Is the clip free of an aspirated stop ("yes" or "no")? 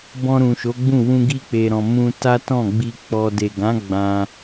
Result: yes